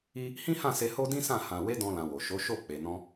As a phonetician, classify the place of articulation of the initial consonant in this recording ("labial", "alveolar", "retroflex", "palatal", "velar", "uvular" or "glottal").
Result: glottal